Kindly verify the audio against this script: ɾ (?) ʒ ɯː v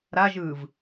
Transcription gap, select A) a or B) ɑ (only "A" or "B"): A